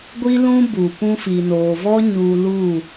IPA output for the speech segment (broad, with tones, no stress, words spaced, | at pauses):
ɡʷi˦lũ˦bu˨ pũ˧fi˨noː˨vɔ˦ ɲu˧ lu˦˨